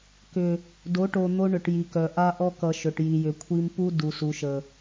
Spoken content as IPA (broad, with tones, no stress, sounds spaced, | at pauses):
k ʏ˨ | d o˨˦ ʈ o˨ n̪ o˦ ɳ ʏ˨ ʈ j i˨ k œ˨ ʔ a˦ ʔ ɔ˦ k ʌ˨ ʃ ɵ˨ ʈ j i˨ j ʏ˨ kʷʰ i˦ m p u˦ d u˨ s u˨ ʃ ə˨